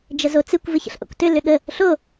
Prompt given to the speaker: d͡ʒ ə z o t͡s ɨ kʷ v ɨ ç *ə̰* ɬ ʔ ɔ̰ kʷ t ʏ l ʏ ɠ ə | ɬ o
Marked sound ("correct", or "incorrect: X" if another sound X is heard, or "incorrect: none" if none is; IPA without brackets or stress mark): correct